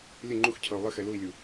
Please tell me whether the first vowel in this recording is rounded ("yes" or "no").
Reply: no